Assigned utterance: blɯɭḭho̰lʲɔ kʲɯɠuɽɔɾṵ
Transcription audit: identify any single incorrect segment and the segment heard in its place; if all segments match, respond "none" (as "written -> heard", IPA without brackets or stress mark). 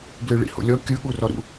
ɽ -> r